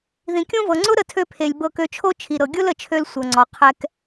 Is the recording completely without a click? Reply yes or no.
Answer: no